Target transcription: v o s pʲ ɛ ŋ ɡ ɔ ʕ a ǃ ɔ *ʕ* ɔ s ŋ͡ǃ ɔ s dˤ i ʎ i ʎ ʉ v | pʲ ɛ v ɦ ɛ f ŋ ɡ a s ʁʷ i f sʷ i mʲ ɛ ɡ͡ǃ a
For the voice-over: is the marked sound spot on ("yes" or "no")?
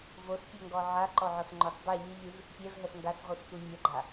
yes